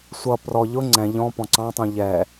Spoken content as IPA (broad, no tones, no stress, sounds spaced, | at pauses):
sʷ ʌ p r ɔ ʎ ʊ ŋ͡ǀ ɛ̃ ʎ ɔ̃ p ɔ̃ ǀ ɑ̃ tˤ ũ ʎ ɛ